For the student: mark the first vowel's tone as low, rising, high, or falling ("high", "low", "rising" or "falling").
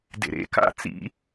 low